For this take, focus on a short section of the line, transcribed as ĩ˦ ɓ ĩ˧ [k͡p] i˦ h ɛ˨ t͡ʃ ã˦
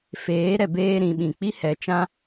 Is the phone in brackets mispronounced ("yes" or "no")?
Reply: no